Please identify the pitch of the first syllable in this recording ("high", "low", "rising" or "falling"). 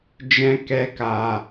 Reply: high